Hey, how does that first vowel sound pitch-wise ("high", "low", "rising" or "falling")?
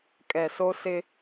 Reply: low